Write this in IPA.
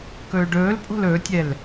k ɵː ɖ ɵː l pʼ o̤ l ɵ tʲ ɛ l

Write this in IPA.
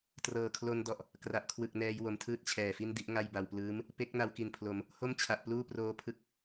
t r ɤː˨˩ kʰ l o˧ n d ɔ˨˩ ʔ | k r a˨˩ ʔ kʰ w ɯ˨˩ k̚ n ɛː˧ j w o˨˩ m tʰ ɯː˥˩ t̚ t͡ɕʰ ɛː˨˩ f i˥˩ n d i˥˩ ʔ ŋ a˥˩ j b a˧ w p l ɯː˦˥ m | p e˦˥ k̚ n a˧ w k i˨˩ n pʰ l o˩˦ m | h o˥˩ m t͡ɕʰ a˨˩ ʔ p l uː˥˩ p r oː˦˥ pʰ ɯ˦˥ k̚

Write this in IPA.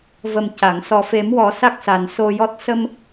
v ə˨˩ m c a˨˩˨ ŋ s ɔ˨˩ f e˨˩˦ m w ɔ˨˩˦ s a˦˥ k̚ s a˨˩ n s o˧ j ɔ˦˥ t̚ s ə˧ m

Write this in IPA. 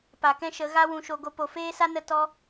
p a˨ k ɛ̃˦ ʃ ə˨˦ ɣ a˦ w ũ˧ ʃ o˧ ɡ o˧ p o˨ f eː˦ s a˦ n ə˦ t ɔ˦

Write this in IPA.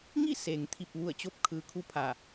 ŋ i˥˨ s e˩ ŋ t̪ʰ i˧˩ p̚ ʋ u˧˩ ə̯ t͡ɕ o˧˥ p̚ kʰ ɯː˩ kʰ u˧˥ pʰ a˧˩

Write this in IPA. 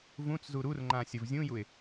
v ũ t͡s z u ɾ u r ŋ͡ǃ ã sʲ ə v zʲ ũ j u ɪ̯

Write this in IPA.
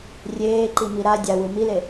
rʲ eː ǃ i m i ɾ a dʲ a w ɯ m i l e

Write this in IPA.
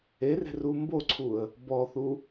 e r e̤ r u m b o ǀʰ u ə̯ | b ɔ θ u

